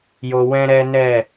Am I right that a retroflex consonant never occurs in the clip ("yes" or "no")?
yes